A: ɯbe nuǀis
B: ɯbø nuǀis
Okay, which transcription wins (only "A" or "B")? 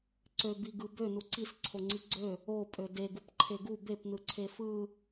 B